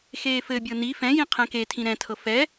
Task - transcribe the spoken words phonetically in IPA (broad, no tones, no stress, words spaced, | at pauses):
xeːfɘbʲɤ ni fɛ̃jĩ qʰɛ̃ketʰĩ ɾɛ̃tʰɤ fɛ